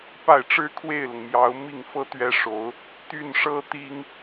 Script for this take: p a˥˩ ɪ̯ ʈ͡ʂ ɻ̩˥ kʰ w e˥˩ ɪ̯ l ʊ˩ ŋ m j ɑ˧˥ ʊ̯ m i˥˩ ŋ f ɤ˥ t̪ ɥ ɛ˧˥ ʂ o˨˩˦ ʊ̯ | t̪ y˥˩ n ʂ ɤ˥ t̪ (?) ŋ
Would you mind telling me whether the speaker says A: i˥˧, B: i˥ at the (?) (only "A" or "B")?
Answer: B